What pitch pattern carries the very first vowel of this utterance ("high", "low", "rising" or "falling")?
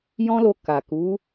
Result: high